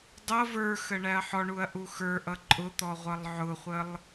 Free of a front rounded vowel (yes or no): yes